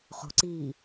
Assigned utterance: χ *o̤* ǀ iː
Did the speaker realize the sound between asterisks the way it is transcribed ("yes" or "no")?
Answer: yes